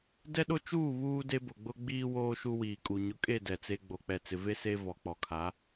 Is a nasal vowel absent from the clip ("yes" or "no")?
yes